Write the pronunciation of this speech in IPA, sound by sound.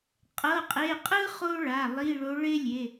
qʼɤ˩˧˩qʼe˩˧˩ qʼɯ˦ χo˦ɭa˩˧˩ lˠi˩˧˩ɭo˩˧ɭe˦ lʲe˩˧˩

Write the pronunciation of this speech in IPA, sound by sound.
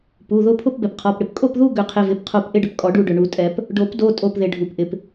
pu˩˧˩ðʊ˥˨ pʰʊ˥˨pbɛ˩pqʰɔ˩˧˩pɽɪ˥˨p kʼo˥˨pðu˥˨ ɡʏ˨˩˦qʰɪ˩˧˩vɪ˩˧˩pqʰo˧˩p ʔɪ˥˨ɖʏ˩pkʼɔ˨˩˦ɖu˧˩ ɖʏ˩ ɳu˨˩˦tʼɛ˨˩˦p | ɖo˨˩˦pdo˩˧˩tʼo˩˧˩pðɪ˩ ɖʱu˩pʔɪ˩p

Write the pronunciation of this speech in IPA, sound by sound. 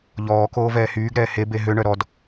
ʎɔːkoː vɛːhyːɡɾɛː hebe ɦøɳœ ɾɔd

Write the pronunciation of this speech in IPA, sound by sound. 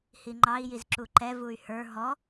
hiŋ͡ǃɑi̯jiz ǁuǃɛ vuy̯hə˞ ɦɔ

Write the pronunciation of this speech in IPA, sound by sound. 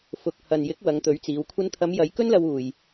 fʊ˨k̚ hɐ˨njɪ˨˥k̚ wɐ˨˧ŋt̪ɵ˨˥ɥt͡siː˨˧w kʷʰɐ˧nt̪ʰɐ˨˧m jɐ˨˧jkɵ˥nlɐ˧wuː˨j

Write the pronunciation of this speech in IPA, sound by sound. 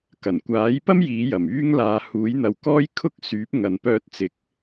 kɐ˨˩nkʷaː˨˥jpɐ˥m jiː˨˥jɐ˨˩myː˥ŋ laː˨˧huː˨˥jn̪ɐ˨w kɔː˥jkʰʊ˥k̚syː˨˥p̚ŋɐ˨n pœː˧t̚t͡sɪ˨˥k̚

